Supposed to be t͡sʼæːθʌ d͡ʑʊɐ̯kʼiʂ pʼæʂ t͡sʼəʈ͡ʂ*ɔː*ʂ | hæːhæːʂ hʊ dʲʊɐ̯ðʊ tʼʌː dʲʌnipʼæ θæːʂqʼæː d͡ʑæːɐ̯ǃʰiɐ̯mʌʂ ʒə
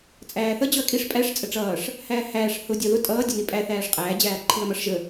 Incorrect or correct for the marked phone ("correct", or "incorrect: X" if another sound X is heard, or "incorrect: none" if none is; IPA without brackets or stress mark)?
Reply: incorrect: ʌː